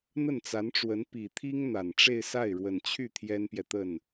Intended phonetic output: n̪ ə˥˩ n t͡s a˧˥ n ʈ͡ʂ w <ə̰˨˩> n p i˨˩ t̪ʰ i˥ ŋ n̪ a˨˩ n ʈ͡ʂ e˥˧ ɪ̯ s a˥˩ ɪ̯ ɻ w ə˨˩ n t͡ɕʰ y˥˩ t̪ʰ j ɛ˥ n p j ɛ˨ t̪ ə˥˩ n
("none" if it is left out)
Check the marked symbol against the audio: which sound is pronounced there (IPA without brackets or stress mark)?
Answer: ə˧˥